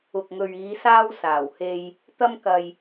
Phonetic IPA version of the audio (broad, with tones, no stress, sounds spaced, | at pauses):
ʊ˨ k̚ ŋ ɵ˨ ɥ iː˨˧ s aː˧ w s aː˨˩ w h e˧ j | t̪ ɐ˧ m k ɐ˨ j